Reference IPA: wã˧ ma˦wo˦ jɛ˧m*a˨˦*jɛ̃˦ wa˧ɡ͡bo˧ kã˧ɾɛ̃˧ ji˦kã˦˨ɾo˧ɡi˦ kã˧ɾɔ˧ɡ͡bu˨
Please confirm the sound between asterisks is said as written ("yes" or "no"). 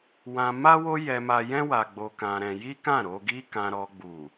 no